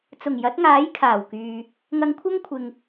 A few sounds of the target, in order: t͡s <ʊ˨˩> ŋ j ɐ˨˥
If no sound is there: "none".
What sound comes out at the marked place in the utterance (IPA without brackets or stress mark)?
ʊ˨˩